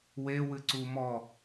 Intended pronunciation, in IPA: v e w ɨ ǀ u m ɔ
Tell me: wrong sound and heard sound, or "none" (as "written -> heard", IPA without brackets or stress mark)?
v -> w